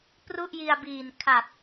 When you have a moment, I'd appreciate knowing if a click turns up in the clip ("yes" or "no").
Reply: no